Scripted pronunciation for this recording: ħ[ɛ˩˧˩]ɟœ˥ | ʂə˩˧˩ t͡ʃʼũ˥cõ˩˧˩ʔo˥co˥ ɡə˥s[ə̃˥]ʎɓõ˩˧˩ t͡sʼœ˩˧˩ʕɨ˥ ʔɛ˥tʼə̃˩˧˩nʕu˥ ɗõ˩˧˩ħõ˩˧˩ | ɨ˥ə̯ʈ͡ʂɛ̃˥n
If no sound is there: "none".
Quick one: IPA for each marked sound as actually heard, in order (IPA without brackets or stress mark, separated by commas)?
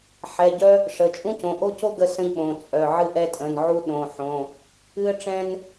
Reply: ɛ˩˧˩, ə̃˥